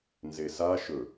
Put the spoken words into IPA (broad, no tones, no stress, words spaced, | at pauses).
nzesa ʃɵ